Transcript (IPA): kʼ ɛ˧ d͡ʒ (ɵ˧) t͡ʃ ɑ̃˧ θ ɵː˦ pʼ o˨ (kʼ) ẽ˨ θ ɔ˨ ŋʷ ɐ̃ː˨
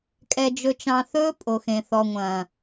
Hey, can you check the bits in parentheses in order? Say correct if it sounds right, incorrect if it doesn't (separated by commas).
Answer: correct, incorrect